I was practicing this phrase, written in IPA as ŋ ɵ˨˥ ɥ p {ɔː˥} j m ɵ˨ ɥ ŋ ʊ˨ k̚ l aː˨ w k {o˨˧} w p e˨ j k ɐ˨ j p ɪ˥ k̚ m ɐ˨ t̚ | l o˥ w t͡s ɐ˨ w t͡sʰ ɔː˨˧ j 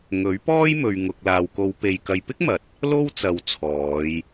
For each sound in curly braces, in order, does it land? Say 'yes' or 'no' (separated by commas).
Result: yes, yes